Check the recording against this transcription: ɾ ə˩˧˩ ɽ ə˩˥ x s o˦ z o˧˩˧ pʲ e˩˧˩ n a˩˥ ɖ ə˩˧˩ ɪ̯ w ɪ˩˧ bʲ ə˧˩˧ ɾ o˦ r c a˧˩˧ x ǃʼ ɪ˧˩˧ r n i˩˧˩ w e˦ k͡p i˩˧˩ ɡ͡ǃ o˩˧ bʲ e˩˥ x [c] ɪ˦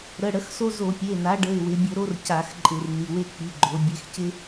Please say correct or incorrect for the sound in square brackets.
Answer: correct